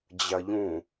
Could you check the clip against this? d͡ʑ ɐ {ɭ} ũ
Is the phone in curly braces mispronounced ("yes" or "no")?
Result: yes